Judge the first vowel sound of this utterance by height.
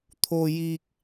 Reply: mid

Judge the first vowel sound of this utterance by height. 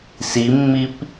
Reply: high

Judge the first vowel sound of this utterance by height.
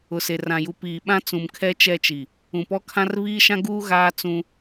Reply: high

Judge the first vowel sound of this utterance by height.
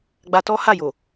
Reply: low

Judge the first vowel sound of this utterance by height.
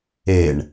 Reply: mid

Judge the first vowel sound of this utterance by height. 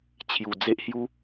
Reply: high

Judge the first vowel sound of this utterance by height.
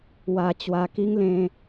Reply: low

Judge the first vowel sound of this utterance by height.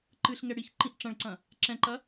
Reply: high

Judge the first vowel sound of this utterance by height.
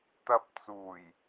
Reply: low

